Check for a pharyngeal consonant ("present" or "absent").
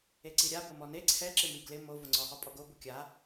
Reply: absent